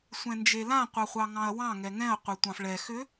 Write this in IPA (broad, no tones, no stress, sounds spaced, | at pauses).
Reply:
sʷ ɛ̃ n d͡ʒ e l ã qʷ ɑ χʷ ɑ ŋ ɑ̃ ɐ̯ w ɑ̃ ŋ ɛ ŋ ɛ̃ ɐ̯ qʷ e tʷ ɑ̃ f ɭ ɛ x ʏ